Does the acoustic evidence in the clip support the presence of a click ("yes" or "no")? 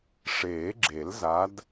yes